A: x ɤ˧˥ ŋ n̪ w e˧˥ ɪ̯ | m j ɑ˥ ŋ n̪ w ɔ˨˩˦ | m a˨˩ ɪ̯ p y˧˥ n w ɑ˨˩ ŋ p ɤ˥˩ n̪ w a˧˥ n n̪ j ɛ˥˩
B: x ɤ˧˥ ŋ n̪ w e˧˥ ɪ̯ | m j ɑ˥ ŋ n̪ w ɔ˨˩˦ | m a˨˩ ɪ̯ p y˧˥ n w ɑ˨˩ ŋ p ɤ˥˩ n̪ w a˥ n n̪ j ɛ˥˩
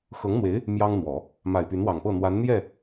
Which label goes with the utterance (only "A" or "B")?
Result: A